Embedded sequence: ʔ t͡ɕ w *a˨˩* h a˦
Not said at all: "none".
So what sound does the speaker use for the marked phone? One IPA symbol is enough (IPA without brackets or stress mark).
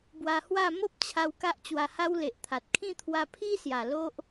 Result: a˧